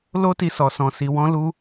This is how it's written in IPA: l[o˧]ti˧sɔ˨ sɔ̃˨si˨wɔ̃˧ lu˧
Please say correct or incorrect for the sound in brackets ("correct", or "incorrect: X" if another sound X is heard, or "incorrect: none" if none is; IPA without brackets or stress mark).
incorrect: o˦